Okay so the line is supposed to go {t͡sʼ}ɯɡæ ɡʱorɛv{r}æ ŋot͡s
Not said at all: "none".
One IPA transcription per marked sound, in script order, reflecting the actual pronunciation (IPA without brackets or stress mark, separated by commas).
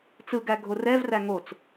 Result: t͡s, r